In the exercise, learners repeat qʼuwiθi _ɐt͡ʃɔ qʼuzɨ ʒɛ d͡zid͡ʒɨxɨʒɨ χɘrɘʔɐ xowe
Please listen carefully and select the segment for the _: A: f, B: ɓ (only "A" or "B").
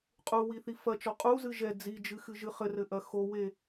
A